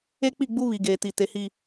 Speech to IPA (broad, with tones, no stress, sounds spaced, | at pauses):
e˦ k͡p i˦˨ ɡ͡b u˦ β i˨ ɡ eː˨ t i˨ t e˨ h i˨